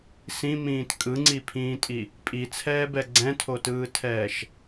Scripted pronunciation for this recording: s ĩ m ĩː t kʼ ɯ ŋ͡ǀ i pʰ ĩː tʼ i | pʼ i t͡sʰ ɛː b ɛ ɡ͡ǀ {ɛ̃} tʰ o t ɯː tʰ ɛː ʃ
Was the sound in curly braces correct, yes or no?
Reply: yes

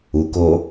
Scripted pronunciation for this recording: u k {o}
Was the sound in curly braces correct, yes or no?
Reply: yes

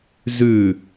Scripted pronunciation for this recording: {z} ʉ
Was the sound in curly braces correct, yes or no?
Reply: yes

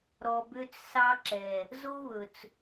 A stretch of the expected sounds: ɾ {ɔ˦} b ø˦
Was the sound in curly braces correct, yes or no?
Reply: no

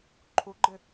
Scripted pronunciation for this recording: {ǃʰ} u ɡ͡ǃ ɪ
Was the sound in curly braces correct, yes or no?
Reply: yes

